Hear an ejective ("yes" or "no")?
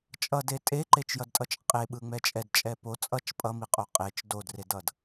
yes